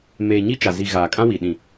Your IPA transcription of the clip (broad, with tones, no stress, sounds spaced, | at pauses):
m eː˨ ɲ i˦ t͡ʃ a˨ z i˨ ɣ aː˨ kʼ ã˦ w i˨ ɗ ĩ˨